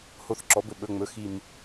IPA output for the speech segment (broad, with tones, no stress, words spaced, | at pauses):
ho˧˩θǁɔ˩˥bɘ˧˩ ɓɵ˧˩ŋ͡mɵ˧˩ xi˧˩m